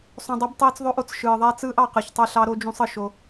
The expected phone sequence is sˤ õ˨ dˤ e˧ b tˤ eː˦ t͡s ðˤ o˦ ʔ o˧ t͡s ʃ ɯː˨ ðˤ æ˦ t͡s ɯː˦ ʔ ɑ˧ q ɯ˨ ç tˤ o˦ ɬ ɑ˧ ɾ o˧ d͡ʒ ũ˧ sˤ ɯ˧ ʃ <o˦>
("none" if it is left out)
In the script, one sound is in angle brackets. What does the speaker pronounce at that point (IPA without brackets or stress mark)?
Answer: o˦